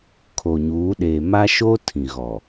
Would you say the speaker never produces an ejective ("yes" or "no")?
yes